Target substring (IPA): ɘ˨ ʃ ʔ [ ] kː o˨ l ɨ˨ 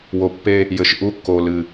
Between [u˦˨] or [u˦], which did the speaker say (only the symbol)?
u˦˨